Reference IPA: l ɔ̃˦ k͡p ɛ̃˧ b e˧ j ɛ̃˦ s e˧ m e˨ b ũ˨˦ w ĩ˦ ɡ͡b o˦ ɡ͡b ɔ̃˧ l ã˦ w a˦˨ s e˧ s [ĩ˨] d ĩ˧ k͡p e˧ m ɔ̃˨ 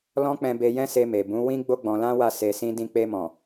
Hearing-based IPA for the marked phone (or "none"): ĩ˦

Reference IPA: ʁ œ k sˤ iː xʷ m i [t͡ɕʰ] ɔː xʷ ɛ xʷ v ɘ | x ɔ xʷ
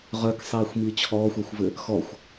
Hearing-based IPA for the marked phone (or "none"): t͡ɕʰ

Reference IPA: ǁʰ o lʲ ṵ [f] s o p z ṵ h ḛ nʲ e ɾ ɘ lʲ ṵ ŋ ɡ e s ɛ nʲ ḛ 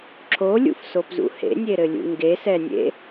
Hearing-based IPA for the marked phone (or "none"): f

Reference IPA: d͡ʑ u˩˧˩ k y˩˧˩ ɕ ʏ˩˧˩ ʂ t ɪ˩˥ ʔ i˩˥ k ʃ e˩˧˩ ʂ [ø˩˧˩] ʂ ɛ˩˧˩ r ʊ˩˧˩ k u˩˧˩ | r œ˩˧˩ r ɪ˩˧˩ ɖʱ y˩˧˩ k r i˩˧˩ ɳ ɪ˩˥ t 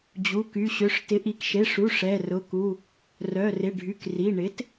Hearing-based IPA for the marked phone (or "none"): u˩˧˩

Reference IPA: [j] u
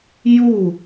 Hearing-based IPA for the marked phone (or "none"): j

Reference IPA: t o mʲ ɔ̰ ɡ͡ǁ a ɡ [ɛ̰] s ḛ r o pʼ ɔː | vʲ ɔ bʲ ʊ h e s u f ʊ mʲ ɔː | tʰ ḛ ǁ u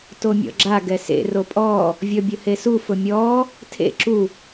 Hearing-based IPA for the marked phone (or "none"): ɛ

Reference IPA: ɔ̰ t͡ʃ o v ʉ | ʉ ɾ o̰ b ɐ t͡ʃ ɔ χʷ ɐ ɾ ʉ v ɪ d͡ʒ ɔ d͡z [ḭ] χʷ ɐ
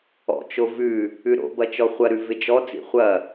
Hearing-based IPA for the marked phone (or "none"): ḭ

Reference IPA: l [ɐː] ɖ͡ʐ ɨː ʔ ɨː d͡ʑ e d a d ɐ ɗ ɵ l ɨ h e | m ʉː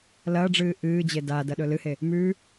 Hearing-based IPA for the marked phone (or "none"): ɐː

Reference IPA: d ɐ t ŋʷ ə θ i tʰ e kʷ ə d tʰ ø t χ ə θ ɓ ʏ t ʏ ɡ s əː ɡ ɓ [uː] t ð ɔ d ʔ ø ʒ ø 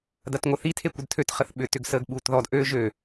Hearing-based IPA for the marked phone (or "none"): uː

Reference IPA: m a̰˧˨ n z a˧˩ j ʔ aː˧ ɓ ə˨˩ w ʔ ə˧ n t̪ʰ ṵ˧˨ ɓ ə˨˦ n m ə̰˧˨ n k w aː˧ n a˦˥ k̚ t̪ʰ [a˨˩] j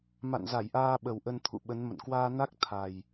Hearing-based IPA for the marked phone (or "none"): a˨˩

